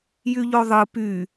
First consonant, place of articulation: palatal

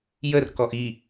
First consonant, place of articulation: palatal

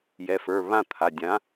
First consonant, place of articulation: palatal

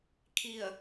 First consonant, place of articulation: velar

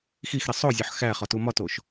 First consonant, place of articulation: velar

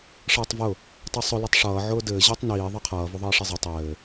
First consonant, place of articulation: retroflex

